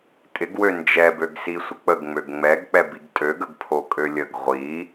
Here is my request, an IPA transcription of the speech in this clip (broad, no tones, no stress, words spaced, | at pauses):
tʼɪɡwø nd͡ʒɛbøɡsi sʷək͡pəɡŋ͡møɡ ŋ͡mɛɡk͡pɛbiɡ tʼøɡəɡ pʰokʼølʲəɡ ʁʷi